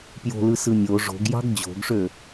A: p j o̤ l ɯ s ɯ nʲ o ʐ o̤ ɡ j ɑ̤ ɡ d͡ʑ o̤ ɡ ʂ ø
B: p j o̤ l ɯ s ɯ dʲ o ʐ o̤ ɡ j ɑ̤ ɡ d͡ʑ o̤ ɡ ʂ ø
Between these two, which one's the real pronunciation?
A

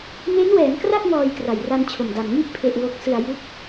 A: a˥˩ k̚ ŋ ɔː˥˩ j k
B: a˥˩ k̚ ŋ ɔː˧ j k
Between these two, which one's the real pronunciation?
B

